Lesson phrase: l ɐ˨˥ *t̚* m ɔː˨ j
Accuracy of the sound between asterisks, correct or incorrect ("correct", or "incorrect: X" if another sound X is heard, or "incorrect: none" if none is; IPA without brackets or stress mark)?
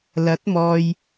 correct